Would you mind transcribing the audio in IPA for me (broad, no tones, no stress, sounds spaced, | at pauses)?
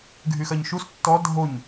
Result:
ɡʱ y x ɜ ɲ ʃ u s tː ɔ dʱ o ɲ